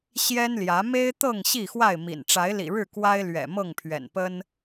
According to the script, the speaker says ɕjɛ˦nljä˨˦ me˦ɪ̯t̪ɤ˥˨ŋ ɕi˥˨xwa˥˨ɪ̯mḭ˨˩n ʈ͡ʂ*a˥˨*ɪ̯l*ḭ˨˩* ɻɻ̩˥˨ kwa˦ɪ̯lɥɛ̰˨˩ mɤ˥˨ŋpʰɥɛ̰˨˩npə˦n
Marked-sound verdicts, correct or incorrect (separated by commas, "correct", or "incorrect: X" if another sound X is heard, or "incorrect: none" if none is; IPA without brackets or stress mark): incorrect: a˨˦, correct